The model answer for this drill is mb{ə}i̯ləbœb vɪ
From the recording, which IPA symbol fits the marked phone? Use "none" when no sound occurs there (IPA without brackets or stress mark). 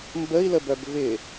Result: ə